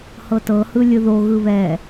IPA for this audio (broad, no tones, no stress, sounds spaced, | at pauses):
h ɤ t ɤ h ɯ lʲ ɯ ð o ɣ ɯ β ɛ